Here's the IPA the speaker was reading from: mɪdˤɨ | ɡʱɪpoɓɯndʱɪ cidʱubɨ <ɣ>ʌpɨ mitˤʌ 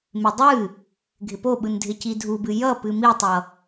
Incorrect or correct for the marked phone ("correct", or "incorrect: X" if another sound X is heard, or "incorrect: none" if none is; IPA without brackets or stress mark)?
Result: incorrect: j